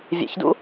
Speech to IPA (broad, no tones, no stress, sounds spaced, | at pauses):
vʲ ḛ ç d ṵ